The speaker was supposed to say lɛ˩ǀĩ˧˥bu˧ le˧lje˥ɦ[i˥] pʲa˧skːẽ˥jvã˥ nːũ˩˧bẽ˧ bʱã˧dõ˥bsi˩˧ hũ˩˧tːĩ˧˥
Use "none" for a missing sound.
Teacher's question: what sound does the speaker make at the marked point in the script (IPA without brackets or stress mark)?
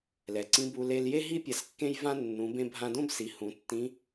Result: i˥